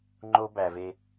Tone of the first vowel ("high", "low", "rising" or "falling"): high